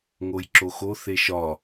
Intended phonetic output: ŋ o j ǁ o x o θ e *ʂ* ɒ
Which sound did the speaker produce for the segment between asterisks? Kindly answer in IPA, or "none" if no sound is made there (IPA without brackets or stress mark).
ʃ